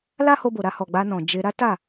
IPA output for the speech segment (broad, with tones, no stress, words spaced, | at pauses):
la˦ho˧bo˨ɾa˧ hɔ˨ɡ͡ba˧nɔ̃˨ d͡ʒe˧ ɾa˦ta˦˨